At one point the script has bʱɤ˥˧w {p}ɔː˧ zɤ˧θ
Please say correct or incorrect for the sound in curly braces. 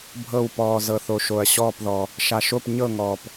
correct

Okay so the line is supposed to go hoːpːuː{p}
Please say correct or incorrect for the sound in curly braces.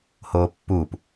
correct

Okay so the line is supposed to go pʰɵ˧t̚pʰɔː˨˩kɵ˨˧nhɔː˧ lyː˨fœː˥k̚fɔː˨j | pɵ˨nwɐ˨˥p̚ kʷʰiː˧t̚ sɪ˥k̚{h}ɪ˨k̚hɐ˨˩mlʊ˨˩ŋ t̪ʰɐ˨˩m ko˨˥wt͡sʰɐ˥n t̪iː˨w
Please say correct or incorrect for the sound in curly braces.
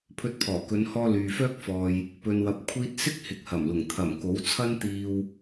correct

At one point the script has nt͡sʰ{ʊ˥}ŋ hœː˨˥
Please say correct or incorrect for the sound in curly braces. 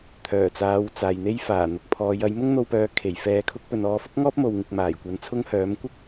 correct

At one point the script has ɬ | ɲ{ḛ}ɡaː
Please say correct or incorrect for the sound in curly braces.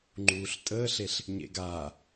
correct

